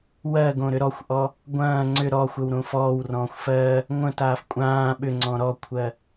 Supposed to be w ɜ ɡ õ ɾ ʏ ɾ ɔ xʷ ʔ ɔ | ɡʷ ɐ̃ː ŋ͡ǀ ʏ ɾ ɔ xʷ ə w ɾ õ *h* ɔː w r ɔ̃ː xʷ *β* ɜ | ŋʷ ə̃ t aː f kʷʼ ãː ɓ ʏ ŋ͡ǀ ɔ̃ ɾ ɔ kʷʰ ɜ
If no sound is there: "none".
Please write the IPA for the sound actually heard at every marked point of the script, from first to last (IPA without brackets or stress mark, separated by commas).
f, f